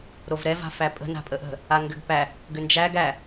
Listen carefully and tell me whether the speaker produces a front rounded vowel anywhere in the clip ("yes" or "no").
yes